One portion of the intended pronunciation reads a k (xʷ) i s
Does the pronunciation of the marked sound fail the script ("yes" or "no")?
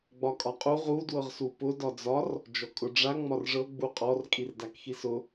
yes